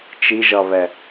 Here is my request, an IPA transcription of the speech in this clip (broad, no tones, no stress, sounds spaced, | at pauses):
t͡ʃ i ʒ ʌ β ɛ